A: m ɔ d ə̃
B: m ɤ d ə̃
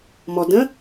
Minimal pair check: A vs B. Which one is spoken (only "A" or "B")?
A